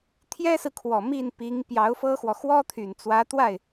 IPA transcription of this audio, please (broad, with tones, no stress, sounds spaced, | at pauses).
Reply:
t̪ʰ j ɛ˥ s ɹ̩˨ kʰ w ɔ˨˩ m i˥˩ n p i˧˥ ŋ p j ɑ˧˥ ʊ̯ f ɤ˥ x w ɔ˨ x w ɔ˥ t̪ʰ y˨˩ n t͡s w ä˧˥ t̪ w a˥˩ ɪ̯